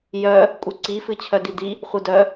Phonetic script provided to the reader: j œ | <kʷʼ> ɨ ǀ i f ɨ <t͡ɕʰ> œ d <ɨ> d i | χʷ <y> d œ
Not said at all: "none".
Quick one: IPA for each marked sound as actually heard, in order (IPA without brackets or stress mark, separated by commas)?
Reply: kʷʼ, t͡ɕʰ, i, ɨ